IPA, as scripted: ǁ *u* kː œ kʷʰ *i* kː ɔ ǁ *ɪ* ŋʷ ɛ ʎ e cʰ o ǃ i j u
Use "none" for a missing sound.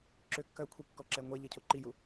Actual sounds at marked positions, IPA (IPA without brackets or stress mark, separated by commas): ʏ, i, ɛ